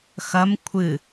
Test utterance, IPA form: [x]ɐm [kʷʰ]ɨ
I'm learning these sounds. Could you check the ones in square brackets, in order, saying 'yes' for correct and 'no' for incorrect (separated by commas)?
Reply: yes, yes